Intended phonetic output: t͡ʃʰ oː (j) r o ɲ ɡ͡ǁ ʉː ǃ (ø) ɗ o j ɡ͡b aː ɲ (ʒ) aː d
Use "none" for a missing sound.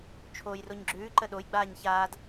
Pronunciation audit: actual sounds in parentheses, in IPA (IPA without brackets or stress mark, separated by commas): j, ə, ç